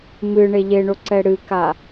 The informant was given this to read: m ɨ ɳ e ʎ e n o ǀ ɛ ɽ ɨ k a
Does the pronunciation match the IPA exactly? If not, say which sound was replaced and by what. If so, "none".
n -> ɳ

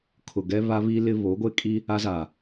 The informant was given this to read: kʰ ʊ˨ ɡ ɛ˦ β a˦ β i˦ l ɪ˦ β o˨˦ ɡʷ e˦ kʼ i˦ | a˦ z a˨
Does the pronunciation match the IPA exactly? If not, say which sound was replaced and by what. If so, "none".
none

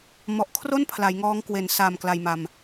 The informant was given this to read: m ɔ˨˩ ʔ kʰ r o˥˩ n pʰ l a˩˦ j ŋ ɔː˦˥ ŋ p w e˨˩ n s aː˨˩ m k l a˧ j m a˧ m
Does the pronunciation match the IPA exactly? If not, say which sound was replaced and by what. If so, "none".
p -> k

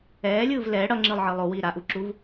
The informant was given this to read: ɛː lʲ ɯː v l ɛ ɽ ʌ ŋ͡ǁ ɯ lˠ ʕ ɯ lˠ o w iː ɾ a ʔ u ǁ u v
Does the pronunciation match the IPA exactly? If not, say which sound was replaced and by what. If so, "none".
none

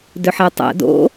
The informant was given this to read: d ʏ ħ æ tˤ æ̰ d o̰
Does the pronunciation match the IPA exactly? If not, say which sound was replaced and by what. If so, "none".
none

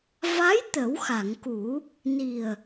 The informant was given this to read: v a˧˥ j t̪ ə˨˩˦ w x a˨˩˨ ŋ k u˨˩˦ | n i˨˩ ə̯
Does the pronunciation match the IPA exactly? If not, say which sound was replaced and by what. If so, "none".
none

